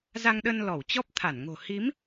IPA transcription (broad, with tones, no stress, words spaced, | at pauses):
za˧ŋɗə˧n lɔ˧˩w t͡ɕɔ˦˥p̚ t̪ʰa˧˩nŋo̤˨˩ hi˨˦m